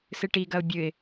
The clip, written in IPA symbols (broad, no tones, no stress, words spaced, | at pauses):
sɨʈi ɡɐʊ̯bʲɨɪ̯